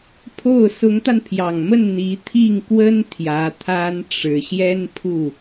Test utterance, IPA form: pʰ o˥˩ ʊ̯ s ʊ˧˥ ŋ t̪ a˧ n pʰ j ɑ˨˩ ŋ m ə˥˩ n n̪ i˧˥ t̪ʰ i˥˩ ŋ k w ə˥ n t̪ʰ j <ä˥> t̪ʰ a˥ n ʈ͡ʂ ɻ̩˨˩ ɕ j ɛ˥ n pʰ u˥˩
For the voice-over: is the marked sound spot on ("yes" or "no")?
no